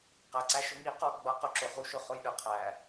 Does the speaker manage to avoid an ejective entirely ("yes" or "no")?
yes